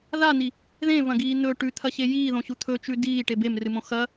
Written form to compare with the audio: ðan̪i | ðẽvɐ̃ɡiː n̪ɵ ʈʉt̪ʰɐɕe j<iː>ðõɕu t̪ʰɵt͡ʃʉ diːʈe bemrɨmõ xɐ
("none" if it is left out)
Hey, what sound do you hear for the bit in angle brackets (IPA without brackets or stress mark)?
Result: iː